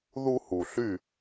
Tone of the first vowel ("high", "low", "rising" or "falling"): high